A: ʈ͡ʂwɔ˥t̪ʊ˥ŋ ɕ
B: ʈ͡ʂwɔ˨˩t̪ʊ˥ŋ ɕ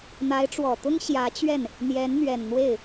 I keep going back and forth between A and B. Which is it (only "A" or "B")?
B